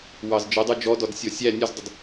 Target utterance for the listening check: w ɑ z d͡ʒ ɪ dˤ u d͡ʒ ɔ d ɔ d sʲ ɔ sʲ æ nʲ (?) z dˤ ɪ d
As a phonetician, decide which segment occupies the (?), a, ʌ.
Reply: ʌ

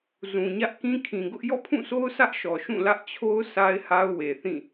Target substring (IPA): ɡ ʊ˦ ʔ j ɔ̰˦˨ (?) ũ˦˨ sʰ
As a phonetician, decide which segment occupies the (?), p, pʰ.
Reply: pʰ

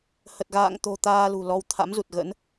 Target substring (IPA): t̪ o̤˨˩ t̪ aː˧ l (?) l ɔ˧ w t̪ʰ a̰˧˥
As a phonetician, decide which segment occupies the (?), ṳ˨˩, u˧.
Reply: ṳ˨˩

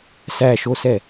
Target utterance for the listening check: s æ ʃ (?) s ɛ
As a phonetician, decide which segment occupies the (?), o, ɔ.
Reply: o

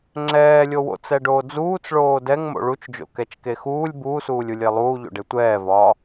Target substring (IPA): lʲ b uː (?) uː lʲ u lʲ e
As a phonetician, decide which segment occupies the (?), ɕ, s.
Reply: s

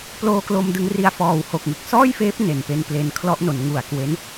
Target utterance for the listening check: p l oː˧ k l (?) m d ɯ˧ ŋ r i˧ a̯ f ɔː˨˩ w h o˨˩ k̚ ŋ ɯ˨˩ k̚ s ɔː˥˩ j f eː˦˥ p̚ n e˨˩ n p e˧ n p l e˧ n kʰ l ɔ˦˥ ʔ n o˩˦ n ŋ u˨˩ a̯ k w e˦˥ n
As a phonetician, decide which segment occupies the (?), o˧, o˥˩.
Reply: o˧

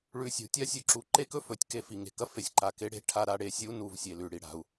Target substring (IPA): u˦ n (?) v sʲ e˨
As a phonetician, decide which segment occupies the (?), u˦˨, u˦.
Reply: u˦˨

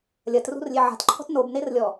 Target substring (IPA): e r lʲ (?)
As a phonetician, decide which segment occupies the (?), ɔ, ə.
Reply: ɔ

